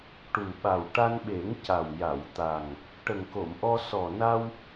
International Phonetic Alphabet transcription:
ʈ u˨˩ ɓ a˨˩ w ʈ a˧ n ɓ e˨˩˦ ŋ c a˨˩ w j a˨˩˨ w t̪ a˨˩ ŋ | ʈ ə˨˩ ŋ k o˨˩˨ m ʔ ɔ˧ s ɔ˨˩ n a˧ w

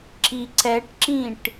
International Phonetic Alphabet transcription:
ǁ i ǀ ɛ ʈ ǁ ĩ ʈ

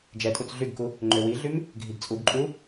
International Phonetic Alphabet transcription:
d͡ʒ ɛ tʼ u t͡s ɮ y ɡ k u | ŋ͡ǃ ø w i ɮ y m | ɡʱ i ɡ t͡sʼ u ɡ ǃʼ u

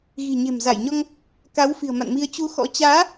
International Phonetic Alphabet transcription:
ɣ i̤˨˩ ɲ e̤˨˩ m z a˧˩ j ɲ ɔ˧ ŋ | k a˨˦ w f i̤˨˩ ə̯ m a̰˧˨ n m i˧ ə̯ t͡ɕ u˧ x ɔ̰˧˥ t͡ɕ aː˨˦

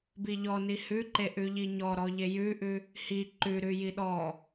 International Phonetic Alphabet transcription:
b i ʎ ɔ n i h ʉ ǃ e ʔ ʉ ʎ i ɲ ɔ ɾ ɔ ʎ e j ʉ ʔ ʉ | h i ǃ ʉ ɾ ʉ j i ɗ ɔ

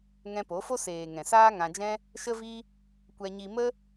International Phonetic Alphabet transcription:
ŋ ɛ̃˧ p o˨˦ f o˦ s eː˨ ŋ ɛ̃˨ s aː˦ ŋ ã˧ d͡ʒ ɛ̃˦ | ʃ ə˦ v i˦ | kʷ ɛ˧ ɲ i˧ m ə˦

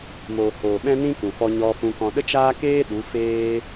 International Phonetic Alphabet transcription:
m oː˨ h oː˨ ɓ ɛ̃˦ n ĩ˦ k ũ˨ f ɔ˧ ɲ ɔ˧ f ũ˧ k ɔ̃˧ ɗ ə˦ t͡ʃ aː˦ k eː˦ ɗ u˨˦ f eː˦

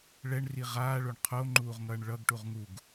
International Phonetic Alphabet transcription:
ɭ ɛ ɳ r i ʁ aː ɭ o ɳ qʰ o ŋ͡ǃ uː ʁ ŋ ʌː ɳ ɭ ʌ ɡ ʈ u ʁ ŋ u ɡ

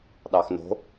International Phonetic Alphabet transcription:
ɗ ɑ x n o̤

